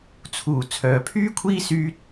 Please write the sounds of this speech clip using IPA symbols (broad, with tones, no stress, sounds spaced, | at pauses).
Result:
t͡sʰ uː˨˩ t͡sʰ œː˨ pʰ yː˥ kʷʰ iː˥ s yː˧ t̚